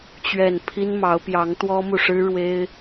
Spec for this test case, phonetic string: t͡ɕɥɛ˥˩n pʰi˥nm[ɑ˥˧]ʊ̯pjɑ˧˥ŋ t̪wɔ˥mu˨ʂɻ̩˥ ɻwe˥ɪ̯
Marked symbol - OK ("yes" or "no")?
no